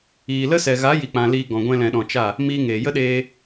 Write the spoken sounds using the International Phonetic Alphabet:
iː˨ l ə˦ s ɛ˨ ɣ a˨˦ j i˨ k͡p ã˨ l iː˧ ɡ ɔ̃˨ ɡʷ ɛ̃˧ l ɛ̃˨ ɗ ɔ̃˨ t͡ʃ a˦˨ | m iː˧ ŋ eː˨ j ə˦ ɗ eː˦

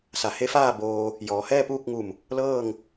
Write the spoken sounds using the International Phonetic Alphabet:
s a˩˧ h e˧˥ f aː˥˨ b oː˧ | j ɔː˩˧ h ɛː˥˨ p uː˥˨ k̚ ŋ u˧˩ m | l ɤː˥˨ ŋ

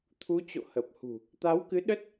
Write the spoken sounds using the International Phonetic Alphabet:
t̪ʰ u˨˦ t͡ɕ o̰˧˨ h ə˨˩ p̚ h ṳ˨˩ | t̪ a˨˦ w k ɨ˨˦ ɗ ə˦˥ t̚

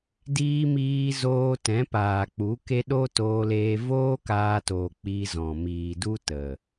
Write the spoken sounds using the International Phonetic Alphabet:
d iː˧ m iː˧ z oː˧ t ɛ̃˨˦ p aː˨ k͡p u˨˦ k e˦ ɗ o˦ t oː˧ l eː˧ v oː˦ k aː˧ t oː˨ k͡p i˧ z ɔ̃˨ m iː˨ d u˦ t ə˨

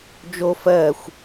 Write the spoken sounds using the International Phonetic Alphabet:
d͡ʒ o f ɜ xʷ

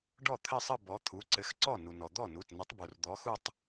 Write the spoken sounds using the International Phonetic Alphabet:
ɖ ɔ˥˩ t̪ʰ ɘ˥˧ sˤ ə˥˧ b ɔ˨˥ t̪ʰ u˩˧˩ ǀ ɘ˨˥ x ǀ ɔ˥˩ n u˩ n ɔ˩ d̪ ɔ˥˩ n u˩˧˩ t n ə˨˥ tˤ b u˩ r d̪ ɔ˨˥ x u˥˧ tˤ

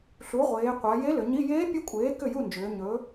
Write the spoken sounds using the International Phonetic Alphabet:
ɬ u˩˥ ʁʷ eː˩˧ qʷ a˩˧ j e˧˥ l ʏ˩˧ ɲ i˧˥˧ j eː˧˥ pʲ ɵ˧˥ kʷʼ eː˩˥ k ʏ˥˩ j u˥˩ n d͡ʒ ʏː˩˧ ɲ ɵ˩˥

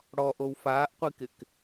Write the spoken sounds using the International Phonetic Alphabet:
ɽ ɔ ʔ o w f aː ʔ qʷ i k ɪ k

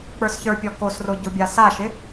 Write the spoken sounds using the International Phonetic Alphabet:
k͡p ə˞ s ç ə˞ pʲ ɔ k o s r o ɟ o bʲ a s a ʃ ɪ

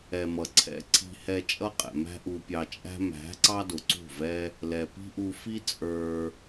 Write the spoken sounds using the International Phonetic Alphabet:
ɛ˨ m ʌ˨ ǀʰ ɛ̰˧ ǀʰ i̤˧ h ɛ˧ t͡ʃʼ ʌ˦ qʼ ɛ̰˨ m æ̤˦ ʔ u˧ pʲ ɑ˧ t͡ʃʼ æ̤˦ m æ̤˨˦ ǀ ɑ˦ d ʊ˨ ǀ ṳ˦˨ v ɛ˦ | l ɛ˨ p i̤˦ ʔ u˧ f i˦ t͡sʼ ə˞˧

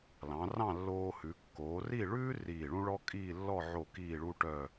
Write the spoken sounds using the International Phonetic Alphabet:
l ɑ̃˩˧ r ɑ̃˥˧ lː oː˧ h ʉ˩˧ kː oː˩˧ r i˥˧ ɭ ʉː˥ r iː˧˩ ɭ ũ˥ ɭ ɔ˥ kʼ iː˥˧ lː ɔ˥˧ ʕ o˧˩ k iː˥˧ ɭ u˥ ʈ œ˥˧

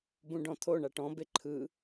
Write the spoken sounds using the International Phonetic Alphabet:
b ũ ɖ ɔ̃ t̪ʰ o ɳ a ʈ ɔ̃ b e ǃʰ ɯ

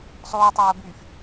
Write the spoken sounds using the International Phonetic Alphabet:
sˤ oː tˤ oː b yː f

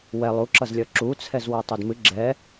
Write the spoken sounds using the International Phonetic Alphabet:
w ɛ lˠ u ǁ ʌ z lʲ ʌ ǁ u t͡sʰ ɛ z w ʌ tˤ u d m ɨ ɡ͡ǁ ɛ

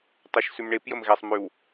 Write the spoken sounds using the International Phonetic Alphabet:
tˤ e ʃ s ʉ m ɳ e p j ə m ɣ ɛ sˤ m ʉ w

